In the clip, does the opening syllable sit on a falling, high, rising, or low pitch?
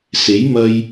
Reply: rising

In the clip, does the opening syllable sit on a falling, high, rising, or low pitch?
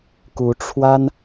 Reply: rising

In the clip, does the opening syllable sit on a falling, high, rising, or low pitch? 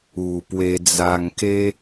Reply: low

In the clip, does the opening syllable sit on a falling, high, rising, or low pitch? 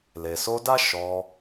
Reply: low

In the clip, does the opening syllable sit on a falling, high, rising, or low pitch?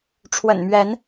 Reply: low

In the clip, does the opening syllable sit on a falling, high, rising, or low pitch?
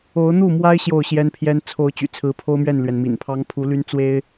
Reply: rising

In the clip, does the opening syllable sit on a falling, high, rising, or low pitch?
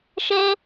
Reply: high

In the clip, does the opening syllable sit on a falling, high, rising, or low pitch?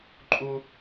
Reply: high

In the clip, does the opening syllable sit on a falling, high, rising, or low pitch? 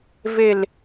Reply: falling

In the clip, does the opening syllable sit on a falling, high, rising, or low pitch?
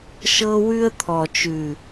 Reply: high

